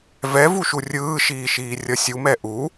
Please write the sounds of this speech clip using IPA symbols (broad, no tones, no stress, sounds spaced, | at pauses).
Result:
v ɛ v u ʃ u rʲ ɯː ʃ iː ʃ iː rʲ ʌ sʲ u m ɛ ʔ u